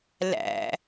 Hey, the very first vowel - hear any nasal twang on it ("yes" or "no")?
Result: no